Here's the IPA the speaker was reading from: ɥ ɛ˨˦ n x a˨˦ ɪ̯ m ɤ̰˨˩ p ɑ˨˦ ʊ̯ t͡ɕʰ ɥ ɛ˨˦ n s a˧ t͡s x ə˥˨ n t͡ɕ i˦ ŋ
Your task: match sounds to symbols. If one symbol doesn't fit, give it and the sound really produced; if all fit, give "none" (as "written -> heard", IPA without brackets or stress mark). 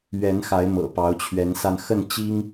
t͡s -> n